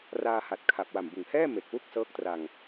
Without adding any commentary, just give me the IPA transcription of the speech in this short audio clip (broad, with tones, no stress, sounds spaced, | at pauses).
r aː˧ h a˨˩ t̚ kʰ a˨˩ p̚ w a˨˩ m b ɯ˨˩ ŋ h ɛː˥˩ m e˨˩ k̚ w u˥˩ k̚ s ɤː˦˥ k̚ t r a˧ ŋ